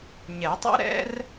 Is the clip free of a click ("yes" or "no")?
yes